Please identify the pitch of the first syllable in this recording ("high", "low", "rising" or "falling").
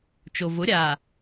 low